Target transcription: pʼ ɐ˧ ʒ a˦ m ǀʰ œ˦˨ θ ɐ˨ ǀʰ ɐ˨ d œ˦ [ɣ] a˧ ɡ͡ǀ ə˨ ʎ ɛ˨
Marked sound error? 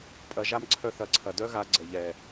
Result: no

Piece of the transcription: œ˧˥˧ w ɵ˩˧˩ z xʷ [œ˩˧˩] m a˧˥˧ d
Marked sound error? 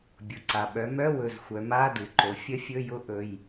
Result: yes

